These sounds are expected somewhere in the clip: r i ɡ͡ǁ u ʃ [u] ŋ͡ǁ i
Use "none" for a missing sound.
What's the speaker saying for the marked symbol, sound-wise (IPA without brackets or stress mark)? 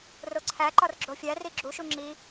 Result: u